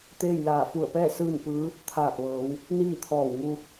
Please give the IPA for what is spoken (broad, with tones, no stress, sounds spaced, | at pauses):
t̪ eː˥˨ j l aː˧˩ f u˧˩ ə̯ p ɛː˥˨ s ɯː˥˨ n p ɯː˧˥ | t̪ʰ aː˧˩ p̚ ʋ ɤː˩˧ w | n iː˥˨ t̪ʰ ɔː˧˩ w ŋ u˧